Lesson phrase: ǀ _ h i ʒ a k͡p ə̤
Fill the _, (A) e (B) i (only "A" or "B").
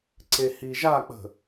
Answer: A